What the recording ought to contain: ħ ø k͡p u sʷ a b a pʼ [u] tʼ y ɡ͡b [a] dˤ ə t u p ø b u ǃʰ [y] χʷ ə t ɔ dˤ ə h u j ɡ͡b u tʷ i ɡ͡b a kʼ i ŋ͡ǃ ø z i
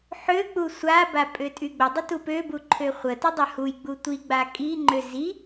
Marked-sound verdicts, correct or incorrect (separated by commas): incorrect, incorrect, incorrect